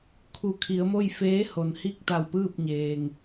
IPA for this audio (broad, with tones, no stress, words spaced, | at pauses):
kʰu˩˧kʰi˩˧ə̯mo˥˨j feː˧˥ho˩nhi˥˨k̚ t̪a˧˩wpɯː˥˨p̚ɲeː˩ŋ